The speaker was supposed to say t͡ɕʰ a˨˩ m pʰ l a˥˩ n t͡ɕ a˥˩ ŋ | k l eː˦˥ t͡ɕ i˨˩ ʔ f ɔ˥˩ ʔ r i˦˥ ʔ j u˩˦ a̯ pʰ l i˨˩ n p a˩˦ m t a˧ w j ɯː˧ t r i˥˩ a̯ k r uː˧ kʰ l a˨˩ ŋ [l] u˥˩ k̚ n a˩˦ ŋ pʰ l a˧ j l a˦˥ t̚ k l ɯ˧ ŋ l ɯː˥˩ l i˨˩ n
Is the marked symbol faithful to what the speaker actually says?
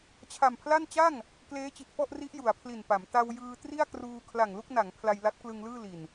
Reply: yes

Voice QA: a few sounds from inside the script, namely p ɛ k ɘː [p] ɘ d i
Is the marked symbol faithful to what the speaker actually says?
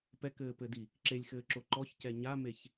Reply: yes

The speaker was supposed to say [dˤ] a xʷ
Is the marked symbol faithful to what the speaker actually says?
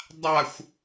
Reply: yes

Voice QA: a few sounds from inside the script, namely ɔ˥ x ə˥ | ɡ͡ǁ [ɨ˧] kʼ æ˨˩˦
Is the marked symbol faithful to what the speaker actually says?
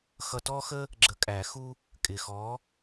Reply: no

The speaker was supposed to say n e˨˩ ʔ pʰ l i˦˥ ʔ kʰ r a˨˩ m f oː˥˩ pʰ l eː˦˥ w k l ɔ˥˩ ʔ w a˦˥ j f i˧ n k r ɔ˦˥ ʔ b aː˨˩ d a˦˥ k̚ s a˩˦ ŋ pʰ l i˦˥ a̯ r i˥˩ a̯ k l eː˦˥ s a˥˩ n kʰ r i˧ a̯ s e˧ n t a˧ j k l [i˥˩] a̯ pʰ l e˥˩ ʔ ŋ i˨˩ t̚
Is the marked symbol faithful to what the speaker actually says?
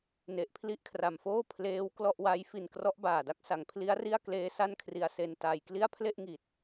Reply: yes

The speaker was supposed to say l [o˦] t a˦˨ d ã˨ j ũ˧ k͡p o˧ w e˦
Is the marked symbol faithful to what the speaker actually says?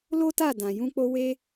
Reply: yes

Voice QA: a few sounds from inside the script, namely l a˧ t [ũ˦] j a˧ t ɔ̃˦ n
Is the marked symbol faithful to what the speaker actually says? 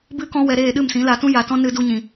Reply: yes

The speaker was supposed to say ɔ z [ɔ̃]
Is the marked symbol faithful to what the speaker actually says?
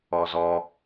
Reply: no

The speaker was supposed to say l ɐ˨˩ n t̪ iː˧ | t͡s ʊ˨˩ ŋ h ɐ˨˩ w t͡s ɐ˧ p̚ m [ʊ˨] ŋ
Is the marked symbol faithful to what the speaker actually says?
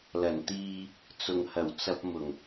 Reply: no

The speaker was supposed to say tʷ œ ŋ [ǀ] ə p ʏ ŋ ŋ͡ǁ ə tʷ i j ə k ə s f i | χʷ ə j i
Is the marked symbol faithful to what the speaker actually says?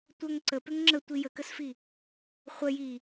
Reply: yes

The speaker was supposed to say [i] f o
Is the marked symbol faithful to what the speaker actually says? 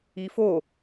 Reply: yes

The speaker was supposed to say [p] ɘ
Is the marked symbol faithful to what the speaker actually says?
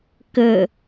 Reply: no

